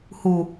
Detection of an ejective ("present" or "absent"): absent